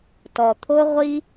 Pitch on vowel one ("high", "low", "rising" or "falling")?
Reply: low